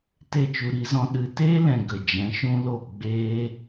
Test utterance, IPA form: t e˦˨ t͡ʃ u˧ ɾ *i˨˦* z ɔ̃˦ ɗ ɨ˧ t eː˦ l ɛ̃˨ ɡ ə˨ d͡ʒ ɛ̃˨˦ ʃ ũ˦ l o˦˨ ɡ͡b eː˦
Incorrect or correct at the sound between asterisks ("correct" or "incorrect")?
correct